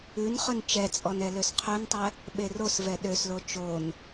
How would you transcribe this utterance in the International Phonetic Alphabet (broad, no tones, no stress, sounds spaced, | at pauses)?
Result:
ʉ n χ ɵ n t͡ʃ ɛ t͡sʼ ɔ n ɛ l ø s qʰ ø n tˤ ɛ | ɓ e r o s v ɛ ɗ ø s l o t͡ʃ o n